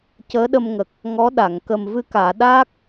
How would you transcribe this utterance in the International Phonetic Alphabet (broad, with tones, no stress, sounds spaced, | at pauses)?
c əː˧˥ ɗ ə˧ m ŋ ə˨˩ k̚ | ŋ ɔ˧˥ ɗ a˨˩˨ ŋ k ə˨˩ m v ɨ˧ k aː˨˩˨ ɗ aː˦˥ k̚